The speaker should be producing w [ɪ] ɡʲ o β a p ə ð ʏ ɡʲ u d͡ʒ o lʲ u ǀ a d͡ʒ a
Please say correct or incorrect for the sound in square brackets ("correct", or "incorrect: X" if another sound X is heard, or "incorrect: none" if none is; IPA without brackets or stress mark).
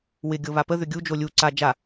correct